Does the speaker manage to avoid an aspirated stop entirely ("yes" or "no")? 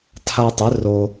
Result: no